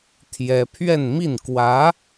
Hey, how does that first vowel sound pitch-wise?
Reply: high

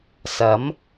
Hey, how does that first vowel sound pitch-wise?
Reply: rising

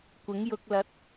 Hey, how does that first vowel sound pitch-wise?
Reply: rising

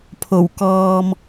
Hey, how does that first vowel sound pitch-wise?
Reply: low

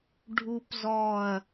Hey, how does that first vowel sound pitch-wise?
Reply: high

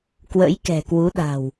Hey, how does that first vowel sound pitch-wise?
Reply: rising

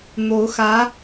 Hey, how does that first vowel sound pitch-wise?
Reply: rising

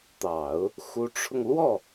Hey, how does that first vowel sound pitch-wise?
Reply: low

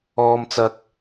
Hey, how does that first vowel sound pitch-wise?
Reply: high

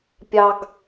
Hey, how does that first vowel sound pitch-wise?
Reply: high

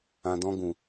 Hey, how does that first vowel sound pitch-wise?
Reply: low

